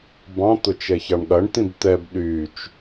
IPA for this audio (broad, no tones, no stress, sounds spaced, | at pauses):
b ɑ̃ t̪ ʊ t͡ʃ ɛ ç ɑ ɳ ɠ ɐ ɳ t̪ ĩ b t̪ ɛ b ɗ y t͡ʃ